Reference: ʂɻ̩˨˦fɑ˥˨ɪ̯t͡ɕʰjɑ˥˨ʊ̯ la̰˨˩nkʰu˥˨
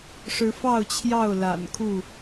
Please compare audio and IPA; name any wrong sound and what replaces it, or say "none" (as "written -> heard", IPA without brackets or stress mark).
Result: ɪ̯ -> ʊ̯